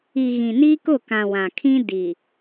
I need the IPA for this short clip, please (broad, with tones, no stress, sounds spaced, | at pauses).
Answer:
i˨ ɣ ĩ˨ n i˦ k ʊ˦˨ k ã˨ w ã˨ kʰ ĩ˦ d i˨